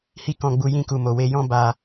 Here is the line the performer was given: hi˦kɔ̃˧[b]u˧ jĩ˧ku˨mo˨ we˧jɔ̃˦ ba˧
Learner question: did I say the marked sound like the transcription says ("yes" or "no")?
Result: no